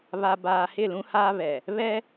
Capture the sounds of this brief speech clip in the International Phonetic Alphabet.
β a˨ b aː˨ h ɪ˦˨ l ũ˦ h aː˦ β ɛ˨ | β ɛ˦

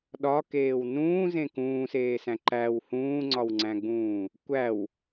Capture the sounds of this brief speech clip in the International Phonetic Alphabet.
ɗ ɒ k eː w n ũː z ẽ k ũː s eː s æ̃ ǃ æ w h ũː ŋ͡ǀ ɒ w ŋ͡ǀ æ̃ ɡ͡b ũː | kʷ æ w

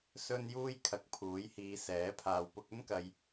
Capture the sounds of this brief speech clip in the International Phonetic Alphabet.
s ɵ˥ n j uː˥ j kʰ ɐ˨˥ k̚ pʰ uː˨˥ j h iː˨˧ s ɛː˨˥ pʰ aː˨ w p ʊ˧ k̚ ɵ˥ n k ɐ˧ j

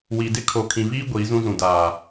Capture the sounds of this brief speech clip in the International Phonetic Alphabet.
w i˨ d ɪ˦ kʰ o˨ kʰ ĩ˨ v iː˦ ɡʷ iː˨˦ z ũ˦ z ũ˨ d aː˨

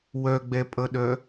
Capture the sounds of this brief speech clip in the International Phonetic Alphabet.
w œ ɡ͡b ɛ pʼ ʌ ɗ œ

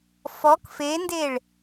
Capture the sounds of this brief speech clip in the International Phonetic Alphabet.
f ɔ k f e n d e ɭ

